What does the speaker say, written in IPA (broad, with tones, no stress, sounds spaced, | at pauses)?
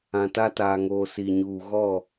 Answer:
ã˨ t a˦ t aː˨ ŋ oː˨ s i˨ ɲ uː˨ ɣ ɔ˦˨